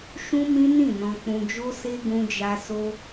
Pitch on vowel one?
high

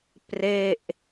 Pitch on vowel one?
falling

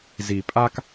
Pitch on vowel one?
low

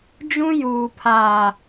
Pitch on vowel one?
high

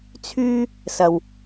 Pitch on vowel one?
high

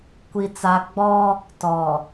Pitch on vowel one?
high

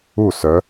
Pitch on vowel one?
falling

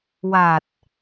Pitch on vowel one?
low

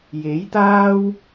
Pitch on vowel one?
rising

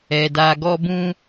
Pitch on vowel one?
low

